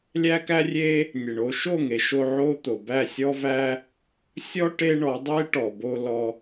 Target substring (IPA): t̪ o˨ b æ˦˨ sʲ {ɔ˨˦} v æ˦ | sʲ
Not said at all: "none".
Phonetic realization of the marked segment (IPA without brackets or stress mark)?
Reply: ɔ˦